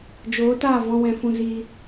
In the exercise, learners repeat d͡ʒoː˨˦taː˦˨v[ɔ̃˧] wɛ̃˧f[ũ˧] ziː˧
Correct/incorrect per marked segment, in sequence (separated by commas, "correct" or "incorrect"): correct, correct